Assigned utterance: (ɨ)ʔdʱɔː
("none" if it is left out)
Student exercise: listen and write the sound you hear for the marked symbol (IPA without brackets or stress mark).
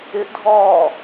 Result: ɪ